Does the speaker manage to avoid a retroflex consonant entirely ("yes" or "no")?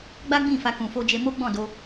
yes